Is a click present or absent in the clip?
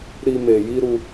absent